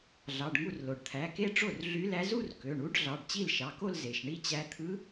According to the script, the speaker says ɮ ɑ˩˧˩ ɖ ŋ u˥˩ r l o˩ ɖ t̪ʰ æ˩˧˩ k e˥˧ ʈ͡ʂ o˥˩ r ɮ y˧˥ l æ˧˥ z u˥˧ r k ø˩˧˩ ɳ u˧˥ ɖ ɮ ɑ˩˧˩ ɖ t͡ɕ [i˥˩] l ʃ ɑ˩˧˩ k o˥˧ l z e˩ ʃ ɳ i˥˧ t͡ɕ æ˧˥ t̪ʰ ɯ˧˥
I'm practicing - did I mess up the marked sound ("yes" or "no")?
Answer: no